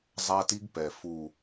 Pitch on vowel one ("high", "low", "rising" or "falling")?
high